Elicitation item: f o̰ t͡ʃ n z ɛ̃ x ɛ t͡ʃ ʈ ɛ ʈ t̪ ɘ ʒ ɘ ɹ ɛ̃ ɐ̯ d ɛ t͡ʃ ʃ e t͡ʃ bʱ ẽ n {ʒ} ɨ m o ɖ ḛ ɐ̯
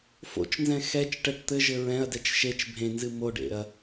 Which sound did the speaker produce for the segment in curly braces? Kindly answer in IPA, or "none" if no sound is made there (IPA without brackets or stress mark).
z